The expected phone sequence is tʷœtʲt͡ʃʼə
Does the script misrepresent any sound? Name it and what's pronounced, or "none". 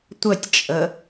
none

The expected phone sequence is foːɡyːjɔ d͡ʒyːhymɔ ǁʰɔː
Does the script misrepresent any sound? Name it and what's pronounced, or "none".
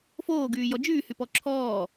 m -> p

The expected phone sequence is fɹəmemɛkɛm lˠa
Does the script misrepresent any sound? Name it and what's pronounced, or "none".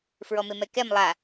ə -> ɔ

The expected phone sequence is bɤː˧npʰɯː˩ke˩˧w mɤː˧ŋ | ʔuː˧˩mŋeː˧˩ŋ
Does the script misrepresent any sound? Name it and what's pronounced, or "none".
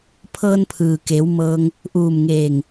b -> pʰ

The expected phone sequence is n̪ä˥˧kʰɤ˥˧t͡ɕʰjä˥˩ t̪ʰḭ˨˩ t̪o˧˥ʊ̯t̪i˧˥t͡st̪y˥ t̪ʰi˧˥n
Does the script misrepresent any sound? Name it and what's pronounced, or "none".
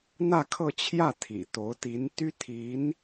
t͡s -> n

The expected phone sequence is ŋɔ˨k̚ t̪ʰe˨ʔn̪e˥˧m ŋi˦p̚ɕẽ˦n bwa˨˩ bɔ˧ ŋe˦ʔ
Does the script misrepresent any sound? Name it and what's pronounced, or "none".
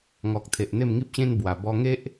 none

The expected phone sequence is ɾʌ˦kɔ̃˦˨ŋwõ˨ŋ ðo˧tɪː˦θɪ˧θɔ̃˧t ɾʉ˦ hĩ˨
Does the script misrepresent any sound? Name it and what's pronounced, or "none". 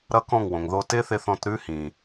none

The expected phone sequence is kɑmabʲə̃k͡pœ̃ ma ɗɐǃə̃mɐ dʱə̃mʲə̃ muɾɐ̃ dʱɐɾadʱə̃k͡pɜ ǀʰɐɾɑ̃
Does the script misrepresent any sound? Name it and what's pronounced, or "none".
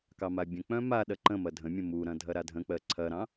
none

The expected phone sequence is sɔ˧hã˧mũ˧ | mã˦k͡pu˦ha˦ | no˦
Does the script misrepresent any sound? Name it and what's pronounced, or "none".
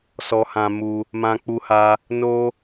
ũ˧ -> u˧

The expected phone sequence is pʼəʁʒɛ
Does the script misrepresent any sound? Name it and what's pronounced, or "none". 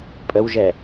ʁ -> w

